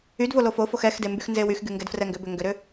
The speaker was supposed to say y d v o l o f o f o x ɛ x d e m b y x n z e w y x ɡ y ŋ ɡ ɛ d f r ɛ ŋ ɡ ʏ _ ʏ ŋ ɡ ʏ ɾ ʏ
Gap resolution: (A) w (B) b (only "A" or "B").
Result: B